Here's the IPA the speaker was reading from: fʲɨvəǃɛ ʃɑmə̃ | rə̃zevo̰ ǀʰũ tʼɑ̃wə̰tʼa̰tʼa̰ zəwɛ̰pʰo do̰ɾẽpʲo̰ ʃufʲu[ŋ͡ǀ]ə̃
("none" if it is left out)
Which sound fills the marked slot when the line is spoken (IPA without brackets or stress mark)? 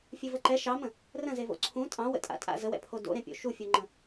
ŋ͡ǃ